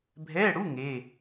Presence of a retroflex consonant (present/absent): present